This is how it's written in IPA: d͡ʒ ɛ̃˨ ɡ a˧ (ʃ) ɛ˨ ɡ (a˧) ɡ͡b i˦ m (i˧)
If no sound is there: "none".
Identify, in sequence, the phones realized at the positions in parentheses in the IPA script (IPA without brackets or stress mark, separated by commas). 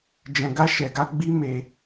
ʃ, a˧, e˧